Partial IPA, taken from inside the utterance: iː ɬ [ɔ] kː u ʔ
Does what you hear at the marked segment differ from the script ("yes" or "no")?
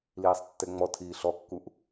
no